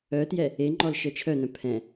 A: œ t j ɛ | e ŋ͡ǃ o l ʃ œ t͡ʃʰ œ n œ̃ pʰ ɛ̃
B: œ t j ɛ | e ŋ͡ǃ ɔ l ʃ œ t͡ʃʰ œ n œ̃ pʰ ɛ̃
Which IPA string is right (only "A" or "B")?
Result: B